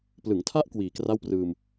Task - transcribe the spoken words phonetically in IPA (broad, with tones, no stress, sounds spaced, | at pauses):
p l ɯ˩˦ ŋ tʰ a˦˥ ʔ k w iː˨˩ k r a˥˩ w p r ɯː˧ m